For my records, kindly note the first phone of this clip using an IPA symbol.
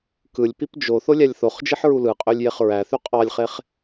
k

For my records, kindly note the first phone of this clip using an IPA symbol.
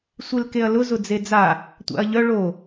sʷ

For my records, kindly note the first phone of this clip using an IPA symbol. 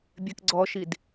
bʲ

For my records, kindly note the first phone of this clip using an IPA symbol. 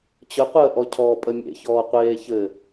t͡ɕ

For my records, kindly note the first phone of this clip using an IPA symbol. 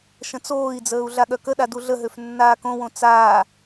ʃ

